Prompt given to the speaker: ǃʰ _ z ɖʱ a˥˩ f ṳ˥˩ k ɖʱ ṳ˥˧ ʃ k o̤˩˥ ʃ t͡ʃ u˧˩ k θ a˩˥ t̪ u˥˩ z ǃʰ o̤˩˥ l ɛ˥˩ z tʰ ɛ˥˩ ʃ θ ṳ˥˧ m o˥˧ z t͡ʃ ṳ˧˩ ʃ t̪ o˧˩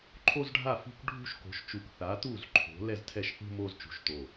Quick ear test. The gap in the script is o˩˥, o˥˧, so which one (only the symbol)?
o˥˧